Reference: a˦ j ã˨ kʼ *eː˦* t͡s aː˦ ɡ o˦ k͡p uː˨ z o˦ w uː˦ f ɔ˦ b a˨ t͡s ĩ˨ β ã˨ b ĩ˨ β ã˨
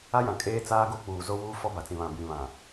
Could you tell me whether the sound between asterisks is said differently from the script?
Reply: no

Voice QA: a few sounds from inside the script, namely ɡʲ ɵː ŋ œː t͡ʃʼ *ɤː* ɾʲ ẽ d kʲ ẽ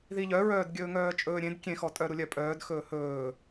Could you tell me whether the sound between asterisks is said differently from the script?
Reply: yes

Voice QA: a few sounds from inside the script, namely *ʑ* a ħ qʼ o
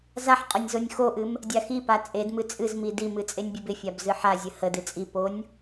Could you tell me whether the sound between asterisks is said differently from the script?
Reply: yes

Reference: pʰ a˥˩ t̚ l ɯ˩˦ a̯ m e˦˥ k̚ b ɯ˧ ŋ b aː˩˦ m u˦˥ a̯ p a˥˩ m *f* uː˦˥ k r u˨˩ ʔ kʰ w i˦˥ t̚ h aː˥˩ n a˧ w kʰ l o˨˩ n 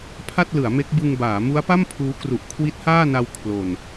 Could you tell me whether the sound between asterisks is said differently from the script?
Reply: yes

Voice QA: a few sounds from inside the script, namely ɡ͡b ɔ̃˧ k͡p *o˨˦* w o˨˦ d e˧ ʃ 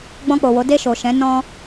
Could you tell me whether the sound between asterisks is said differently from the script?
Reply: yes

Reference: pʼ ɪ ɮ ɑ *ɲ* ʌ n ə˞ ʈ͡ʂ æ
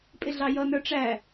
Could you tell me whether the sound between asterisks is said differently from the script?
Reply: yes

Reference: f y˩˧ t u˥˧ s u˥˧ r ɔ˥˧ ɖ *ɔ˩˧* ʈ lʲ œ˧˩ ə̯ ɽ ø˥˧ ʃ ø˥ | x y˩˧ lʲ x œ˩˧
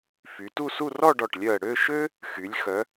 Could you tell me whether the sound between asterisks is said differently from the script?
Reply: yes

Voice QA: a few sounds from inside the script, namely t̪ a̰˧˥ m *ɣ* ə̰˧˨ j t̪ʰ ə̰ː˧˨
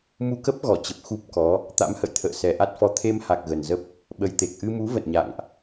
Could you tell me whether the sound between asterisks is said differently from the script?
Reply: yes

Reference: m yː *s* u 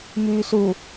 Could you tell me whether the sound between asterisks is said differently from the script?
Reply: no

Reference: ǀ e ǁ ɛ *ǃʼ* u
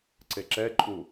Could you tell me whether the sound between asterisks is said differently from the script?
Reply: no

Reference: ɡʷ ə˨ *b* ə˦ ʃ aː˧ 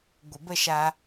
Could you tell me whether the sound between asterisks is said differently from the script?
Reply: no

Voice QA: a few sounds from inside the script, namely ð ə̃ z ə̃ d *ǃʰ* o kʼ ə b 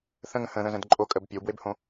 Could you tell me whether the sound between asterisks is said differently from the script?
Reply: yes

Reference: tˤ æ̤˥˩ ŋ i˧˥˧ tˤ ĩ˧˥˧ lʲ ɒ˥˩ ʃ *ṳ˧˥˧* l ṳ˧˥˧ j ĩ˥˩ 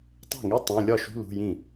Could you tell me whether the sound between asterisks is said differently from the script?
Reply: no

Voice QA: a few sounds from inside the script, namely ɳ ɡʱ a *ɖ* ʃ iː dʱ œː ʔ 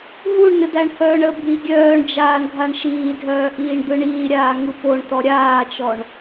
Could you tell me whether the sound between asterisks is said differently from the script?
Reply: yes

